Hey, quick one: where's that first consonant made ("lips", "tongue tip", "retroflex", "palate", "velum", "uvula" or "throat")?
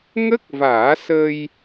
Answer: velum